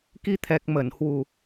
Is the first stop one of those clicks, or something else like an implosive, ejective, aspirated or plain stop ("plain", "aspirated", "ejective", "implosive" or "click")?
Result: plain